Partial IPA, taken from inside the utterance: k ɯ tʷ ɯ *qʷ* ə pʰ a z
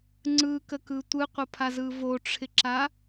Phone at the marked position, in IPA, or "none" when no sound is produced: qʷ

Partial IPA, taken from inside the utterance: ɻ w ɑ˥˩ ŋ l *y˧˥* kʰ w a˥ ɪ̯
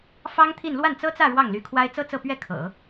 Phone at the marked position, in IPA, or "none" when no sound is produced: y˧˥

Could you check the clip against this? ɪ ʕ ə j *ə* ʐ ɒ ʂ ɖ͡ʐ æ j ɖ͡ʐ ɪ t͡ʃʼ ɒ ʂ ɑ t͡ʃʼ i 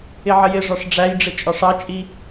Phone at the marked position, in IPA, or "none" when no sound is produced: ɪ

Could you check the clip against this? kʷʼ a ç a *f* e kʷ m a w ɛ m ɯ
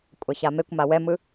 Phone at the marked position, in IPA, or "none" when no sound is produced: m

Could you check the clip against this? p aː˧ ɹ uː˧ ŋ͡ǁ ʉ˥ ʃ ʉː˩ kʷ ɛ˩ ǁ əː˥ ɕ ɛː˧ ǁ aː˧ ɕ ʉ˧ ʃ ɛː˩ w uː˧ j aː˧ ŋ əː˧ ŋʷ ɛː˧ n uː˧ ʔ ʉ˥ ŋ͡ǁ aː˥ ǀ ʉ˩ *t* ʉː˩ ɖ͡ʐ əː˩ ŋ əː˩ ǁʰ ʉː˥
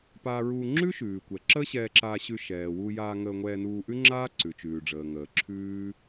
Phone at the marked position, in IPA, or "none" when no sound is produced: t͡ʃ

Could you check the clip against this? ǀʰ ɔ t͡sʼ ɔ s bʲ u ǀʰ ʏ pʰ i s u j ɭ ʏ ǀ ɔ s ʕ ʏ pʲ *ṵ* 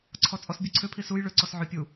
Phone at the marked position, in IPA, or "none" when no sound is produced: u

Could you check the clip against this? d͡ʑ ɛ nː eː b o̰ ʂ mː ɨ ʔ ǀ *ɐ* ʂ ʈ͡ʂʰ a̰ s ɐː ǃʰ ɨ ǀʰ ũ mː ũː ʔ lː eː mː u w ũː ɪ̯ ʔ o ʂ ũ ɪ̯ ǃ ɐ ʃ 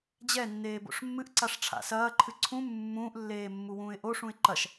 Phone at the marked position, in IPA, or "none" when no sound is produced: a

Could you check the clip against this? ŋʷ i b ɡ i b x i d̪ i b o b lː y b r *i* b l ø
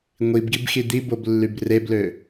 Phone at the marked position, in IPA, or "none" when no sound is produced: e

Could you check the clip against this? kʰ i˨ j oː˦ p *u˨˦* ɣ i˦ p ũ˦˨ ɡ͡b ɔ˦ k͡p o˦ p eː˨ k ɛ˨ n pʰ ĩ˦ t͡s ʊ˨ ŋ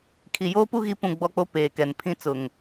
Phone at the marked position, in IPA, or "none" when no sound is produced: u˦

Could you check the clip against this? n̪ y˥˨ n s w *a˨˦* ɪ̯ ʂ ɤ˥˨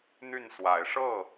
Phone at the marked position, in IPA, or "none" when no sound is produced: a˨˦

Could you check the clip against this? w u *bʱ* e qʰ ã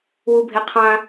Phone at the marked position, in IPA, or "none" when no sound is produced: bʱ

